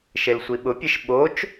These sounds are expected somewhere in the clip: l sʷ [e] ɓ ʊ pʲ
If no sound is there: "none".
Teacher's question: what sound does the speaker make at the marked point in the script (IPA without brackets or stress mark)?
i